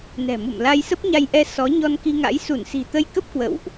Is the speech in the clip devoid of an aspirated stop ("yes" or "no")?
yes